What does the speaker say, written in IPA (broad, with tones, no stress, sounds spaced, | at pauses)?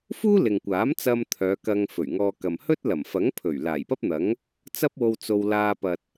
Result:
f uː˥ l ɪ˨ ŋ kʷ aː˨˥ m t͡s ɐ˧ m t̪ʰ œː˨˧ k ɐ˧ ŋ f ɵ˨˩ ɥ ŋ ɔː˧ k ɐ˨ m h ɵ˥ t̚ l ɐ˨˩ m f ɐ˨˥ ŋ pʰ ɵ˨˩ ɥ l aː˨˩ j p ɐ˥ p̚ n̪ ɐ˨˥ ŋ | t͡s ɐ˥ p̚ w o˧ w t͡s o˧ w l aː˧ p ɐ˨ t̚